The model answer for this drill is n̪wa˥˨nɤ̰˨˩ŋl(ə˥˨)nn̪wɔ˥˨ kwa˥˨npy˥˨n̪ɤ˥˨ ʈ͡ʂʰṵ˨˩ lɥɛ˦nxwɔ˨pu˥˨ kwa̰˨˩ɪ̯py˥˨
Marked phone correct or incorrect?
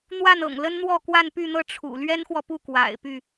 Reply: incorrect